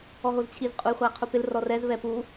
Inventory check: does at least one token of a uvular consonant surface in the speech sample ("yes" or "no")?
yes